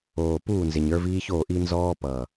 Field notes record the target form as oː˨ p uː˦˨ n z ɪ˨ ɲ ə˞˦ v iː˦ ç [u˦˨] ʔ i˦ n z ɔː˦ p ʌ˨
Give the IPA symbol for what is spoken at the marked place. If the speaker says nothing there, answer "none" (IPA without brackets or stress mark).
o˦˨